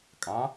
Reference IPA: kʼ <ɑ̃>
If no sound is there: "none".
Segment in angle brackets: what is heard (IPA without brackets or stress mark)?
ɑ̃